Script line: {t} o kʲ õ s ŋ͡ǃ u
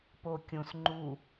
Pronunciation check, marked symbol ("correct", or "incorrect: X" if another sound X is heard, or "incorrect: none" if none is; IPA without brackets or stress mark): incorrect: p